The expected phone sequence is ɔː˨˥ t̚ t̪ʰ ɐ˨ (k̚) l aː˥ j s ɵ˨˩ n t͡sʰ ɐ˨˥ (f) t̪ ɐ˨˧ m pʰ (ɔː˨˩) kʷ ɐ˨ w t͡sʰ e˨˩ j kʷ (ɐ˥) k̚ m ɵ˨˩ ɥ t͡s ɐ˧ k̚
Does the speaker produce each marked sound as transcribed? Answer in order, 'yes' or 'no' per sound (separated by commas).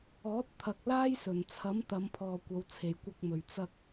yes, no, no, no